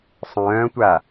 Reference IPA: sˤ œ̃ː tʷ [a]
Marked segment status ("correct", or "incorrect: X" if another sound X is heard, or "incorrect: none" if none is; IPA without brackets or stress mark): correct